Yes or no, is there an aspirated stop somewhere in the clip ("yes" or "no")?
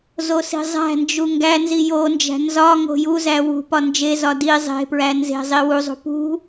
no